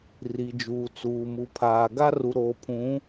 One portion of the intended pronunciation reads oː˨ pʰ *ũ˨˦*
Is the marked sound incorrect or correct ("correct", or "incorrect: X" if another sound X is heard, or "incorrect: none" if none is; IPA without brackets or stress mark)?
correct